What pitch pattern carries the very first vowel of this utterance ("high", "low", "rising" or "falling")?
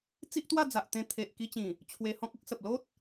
high